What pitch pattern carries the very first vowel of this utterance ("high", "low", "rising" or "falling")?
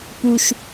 low